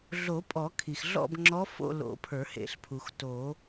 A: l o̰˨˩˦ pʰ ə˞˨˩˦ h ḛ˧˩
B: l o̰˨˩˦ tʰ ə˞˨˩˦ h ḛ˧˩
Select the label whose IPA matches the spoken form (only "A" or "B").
A